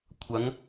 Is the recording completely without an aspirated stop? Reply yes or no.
no